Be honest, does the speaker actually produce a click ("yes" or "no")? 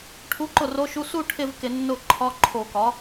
yes